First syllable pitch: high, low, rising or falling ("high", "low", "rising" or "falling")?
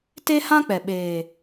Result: high